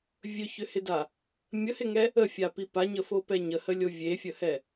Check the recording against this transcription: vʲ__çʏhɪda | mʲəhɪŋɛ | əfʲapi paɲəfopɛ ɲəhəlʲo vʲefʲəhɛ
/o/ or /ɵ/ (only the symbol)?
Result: ɵ